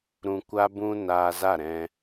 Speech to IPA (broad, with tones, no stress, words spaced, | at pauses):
ɾũ˧kʷa˦bũ˦ naː˧za˦˨ɾɛ̃˧